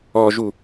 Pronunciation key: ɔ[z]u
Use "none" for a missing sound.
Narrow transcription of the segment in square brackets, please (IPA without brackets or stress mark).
ʒ